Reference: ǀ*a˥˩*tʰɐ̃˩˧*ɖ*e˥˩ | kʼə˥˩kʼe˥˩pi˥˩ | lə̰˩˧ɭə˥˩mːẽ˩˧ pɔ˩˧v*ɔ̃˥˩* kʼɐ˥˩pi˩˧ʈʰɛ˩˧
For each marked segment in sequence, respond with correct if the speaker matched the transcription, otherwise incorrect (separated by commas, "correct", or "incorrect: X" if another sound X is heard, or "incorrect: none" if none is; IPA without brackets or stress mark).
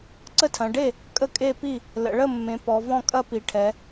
incorrect: ə˥˩, correct, correct